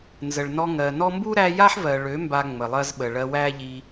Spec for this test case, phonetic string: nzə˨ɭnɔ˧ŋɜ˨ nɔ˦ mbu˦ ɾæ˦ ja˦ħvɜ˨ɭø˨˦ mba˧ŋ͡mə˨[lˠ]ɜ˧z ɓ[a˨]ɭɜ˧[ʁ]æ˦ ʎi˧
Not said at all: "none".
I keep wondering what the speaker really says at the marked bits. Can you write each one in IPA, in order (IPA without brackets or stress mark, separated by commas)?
lˠ, ə˨, w